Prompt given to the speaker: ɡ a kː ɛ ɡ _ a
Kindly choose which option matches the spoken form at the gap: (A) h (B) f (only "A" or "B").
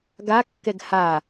A